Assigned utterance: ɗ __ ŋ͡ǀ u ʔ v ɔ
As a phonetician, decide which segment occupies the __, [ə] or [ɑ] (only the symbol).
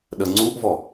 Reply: ə